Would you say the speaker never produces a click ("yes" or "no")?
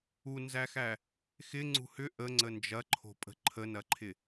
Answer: no